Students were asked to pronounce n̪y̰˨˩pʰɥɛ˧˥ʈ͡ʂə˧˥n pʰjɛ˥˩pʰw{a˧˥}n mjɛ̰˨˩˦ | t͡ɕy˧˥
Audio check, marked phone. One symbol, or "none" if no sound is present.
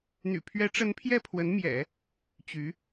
ə˧˥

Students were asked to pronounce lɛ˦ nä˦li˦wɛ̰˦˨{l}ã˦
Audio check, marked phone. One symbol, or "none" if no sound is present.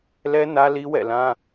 l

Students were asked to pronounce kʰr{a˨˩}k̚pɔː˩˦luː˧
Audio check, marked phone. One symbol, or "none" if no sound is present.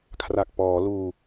a˨˩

